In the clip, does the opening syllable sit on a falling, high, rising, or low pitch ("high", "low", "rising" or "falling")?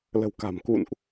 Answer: low